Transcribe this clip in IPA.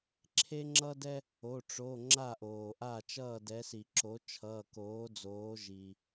ǁʰ e˦ ŋ͡ǁ ʌ˦ d ɛ˦ | o˩˧˩ ʈ͡ʂ o˩˧˩ ŋ͡ǁ a˥˩ ʔ oː˩ ʔ a˥˩ t͡ʃ ʌː˥˩ d ɛ˩˥ s i˩ ǁ o˩˥ t͡ʃʰ ʌː˩˧˩ k oː˩˥ d͡z oː˩˥ ʒ iː˩

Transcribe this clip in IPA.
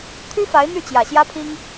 t̪ʰ y˥ f a˧˥ ɪ̯ n̪ y˥˩ t͡ɕ j ä˨˩ ɕ j ä˥ pʰ i˥ ŋ

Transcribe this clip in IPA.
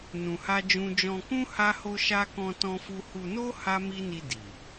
n ũ˧ h a˦ d͡ʒ ũ˦ d͡ʒ ɔ̃˧ k ũ˦ h a˦ h o˦ ʃ a˦ k ɔ̃˦ t ɔ̃˦ f u˦ h u˧ n o˦ h a˦ m i˦ n i˧ d i˨

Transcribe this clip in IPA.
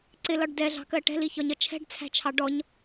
ǀ ɪ l ɒ ɖ d ɛ ɮ ɑ̤ k ɜ ʈ ɛ̤ l i ç ɒ ɲ ʌ t͡ʃʰ ɛ̤ ɖ t͡sʰ æ̤ t͡ʃʰ ɑ ɖ ɔ ɲ

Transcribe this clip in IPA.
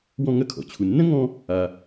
w ɔ̃˧ ŋ ɐ˧ kʰ ɔ̰˩ t͡ɕʰ u˩ nː ɐ̃˥ ŋ ɔ̃˧ | a˩

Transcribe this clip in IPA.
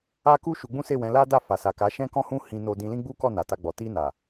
a˦ k u˦ ʃ u˧ ɡ͡b ũ˦ s e˦˨ w ɛ̃˨˦ l a˦ d a˦˨ f a˨ s a˨ k a˨˦ ʃ ɛ̃˦ k ɔ̃˦ h ũ˦ h ĩ˧ n o˧ d ĩ˧ l ĩ˦ ɡ͡b u˦ k ɔ˦˨ n a˨ t a˧ ɡ͡b ɔ˨ t i˧ n a˨

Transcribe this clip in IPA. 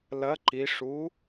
l ɐ ǃ i ʂ u

